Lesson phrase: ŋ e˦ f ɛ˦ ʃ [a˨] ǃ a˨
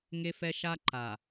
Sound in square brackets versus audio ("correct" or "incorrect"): incorrect